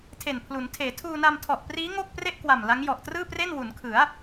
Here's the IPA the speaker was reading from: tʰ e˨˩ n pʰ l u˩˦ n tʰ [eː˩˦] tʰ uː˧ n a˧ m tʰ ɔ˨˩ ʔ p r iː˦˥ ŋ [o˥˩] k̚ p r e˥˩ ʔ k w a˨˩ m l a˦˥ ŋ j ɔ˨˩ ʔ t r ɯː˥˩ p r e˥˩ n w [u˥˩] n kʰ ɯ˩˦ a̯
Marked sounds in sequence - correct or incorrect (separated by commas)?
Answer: correct, correct, incorrect